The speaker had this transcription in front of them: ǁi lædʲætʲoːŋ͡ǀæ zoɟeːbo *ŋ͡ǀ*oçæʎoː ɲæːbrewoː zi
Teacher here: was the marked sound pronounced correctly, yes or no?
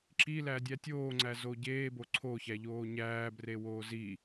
no